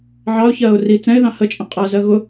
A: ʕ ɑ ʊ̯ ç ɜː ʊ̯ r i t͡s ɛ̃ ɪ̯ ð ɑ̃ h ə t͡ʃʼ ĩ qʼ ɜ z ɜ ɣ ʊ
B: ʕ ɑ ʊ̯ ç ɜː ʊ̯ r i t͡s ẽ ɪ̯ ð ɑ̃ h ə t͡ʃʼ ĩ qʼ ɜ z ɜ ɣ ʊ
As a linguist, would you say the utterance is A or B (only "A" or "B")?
A